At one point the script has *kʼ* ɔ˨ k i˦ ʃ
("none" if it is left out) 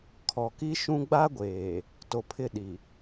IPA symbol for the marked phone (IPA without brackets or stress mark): kʰ